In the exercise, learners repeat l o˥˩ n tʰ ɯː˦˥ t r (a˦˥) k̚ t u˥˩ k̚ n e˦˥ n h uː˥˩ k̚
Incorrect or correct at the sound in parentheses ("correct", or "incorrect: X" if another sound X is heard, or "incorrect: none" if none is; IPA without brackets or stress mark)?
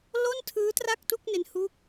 incorrect: a˥˩